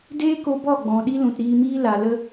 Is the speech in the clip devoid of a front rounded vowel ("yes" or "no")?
yes